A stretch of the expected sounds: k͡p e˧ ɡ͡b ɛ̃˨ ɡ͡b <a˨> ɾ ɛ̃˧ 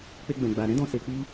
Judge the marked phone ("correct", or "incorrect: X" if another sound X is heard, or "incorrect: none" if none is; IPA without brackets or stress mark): correct